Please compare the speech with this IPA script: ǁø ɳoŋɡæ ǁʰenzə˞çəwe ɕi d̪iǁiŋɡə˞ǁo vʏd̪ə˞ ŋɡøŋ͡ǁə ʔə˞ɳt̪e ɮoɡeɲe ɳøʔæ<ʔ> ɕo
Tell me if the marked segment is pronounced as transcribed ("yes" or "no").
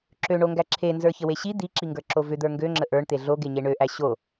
no